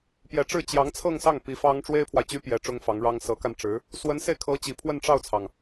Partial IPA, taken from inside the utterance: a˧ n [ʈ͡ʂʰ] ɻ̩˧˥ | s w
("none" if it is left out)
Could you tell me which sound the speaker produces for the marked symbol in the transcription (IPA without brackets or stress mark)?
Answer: ʈ͡ʂ